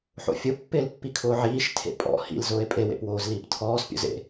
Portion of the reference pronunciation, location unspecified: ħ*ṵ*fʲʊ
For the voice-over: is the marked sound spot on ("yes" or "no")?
no